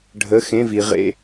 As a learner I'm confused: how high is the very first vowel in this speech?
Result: mid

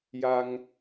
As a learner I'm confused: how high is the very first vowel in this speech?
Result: low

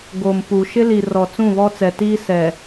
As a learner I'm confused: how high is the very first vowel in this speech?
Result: mid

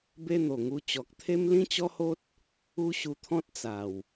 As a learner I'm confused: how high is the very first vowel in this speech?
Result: mid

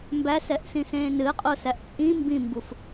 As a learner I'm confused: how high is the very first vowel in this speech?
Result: low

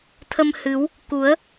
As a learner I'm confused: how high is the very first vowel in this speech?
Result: mid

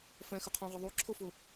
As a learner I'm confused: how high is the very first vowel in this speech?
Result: mid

